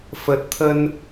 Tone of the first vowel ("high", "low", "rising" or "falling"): low